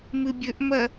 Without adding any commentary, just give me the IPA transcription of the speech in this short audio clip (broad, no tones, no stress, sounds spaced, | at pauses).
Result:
m ɨ bʲ ɵ ʔ m ɐ